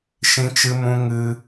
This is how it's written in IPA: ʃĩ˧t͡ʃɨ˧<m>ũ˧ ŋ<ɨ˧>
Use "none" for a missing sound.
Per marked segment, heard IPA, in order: m, ɨ˧

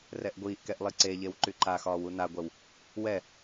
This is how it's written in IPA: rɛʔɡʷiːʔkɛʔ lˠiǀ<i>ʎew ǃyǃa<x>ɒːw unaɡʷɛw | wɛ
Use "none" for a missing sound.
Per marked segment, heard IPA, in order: e, x

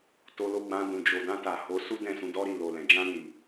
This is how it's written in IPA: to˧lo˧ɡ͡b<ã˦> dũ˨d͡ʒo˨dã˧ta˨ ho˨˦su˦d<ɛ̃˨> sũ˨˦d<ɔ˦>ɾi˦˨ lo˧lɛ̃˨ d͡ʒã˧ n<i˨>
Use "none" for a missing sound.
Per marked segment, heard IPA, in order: ã˧, ɛ̃˦˨, ɔ˦, i˨

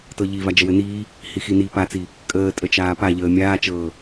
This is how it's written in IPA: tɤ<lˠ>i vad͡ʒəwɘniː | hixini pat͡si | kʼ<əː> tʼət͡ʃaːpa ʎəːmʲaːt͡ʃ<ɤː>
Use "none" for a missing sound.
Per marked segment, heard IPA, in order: ʎ, əː, ɤː

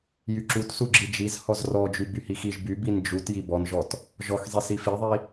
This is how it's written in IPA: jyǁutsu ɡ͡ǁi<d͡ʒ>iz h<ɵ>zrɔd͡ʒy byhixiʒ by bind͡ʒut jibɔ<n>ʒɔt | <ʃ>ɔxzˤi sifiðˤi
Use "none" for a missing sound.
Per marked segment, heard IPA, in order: d͡ʒ, ɔ, n, ʒ

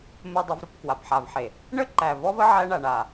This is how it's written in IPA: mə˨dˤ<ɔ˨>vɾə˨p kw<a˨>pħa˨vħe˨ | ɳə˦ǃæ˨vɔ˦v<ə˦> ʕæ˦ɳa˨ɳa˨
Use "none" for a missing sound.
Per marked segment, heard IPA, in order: ə˨, a˨, ə˦

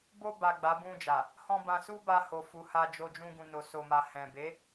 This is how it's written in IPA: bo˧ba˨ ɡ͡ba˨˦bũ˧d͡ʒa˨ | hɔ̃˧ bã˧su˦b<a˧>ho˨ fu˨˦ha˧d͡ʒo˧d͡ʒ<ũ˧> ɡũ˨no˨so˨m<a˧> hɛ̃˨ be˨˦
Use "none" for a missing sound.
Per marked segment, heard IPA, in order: a˧, ũ˧, a˨

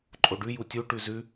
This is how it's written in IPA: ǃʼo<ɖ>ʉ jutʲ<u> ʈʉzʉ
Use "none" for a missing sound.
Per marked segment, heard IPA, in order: ɖ, u

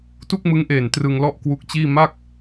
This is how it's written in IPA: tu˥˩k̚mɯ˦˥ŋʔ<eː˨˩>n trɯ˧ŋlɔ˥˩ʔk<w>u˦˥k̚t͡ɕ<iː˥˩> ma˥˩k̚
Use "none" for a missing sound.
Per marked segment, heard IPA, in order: eː˨˩, w, iː˥˩

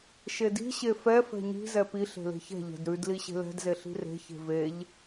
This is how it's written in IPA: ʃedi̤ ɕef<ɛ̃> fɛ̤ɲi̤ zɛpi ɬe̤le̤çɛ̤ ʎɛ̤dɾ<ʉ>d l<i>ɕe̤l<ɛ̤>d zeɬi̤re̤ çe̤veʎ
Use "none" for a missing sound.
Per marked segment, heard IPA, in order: ɛ, ʉ, i, ɛ̤

